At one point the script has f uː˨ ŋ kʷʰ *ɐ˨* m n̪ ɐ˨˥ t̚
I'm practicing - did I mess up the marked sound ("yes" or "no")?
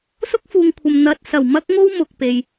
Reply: no